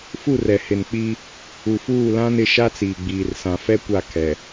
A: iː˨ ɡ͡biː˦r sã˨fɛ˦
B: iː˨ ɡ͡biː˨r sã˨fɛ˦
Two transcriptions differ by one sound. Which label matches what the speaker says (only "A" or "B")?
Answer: B